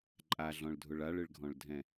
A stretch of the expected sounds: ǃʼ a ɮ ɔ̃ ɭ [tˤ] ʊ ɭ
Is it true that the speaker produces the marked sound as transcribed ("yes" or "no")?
no